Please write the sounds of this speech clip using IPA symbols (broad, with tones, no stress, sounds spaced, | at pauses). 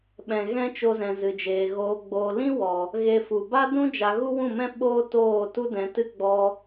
ɓ ɛ̃˧ ɣ ɛ̃˦ t͡ʃ o˧ z ɛ̃˨ z ɨ˨ d͡ʒ eː˨ ɣ oː˧ ɡ͡b oː˨ l ĩ˦ w ɔ˨ | ɣ e˧ f u˨ b a˦ d ũ˦ d͡ʒ a˧ ɣ u˦ w ũ˦˨ m ɛ̃˦ ɓ oː˦ t oː˦˨ t u˦ d ɛ̃˨˦ t ɨ˦ ɡ͡b ɔ˧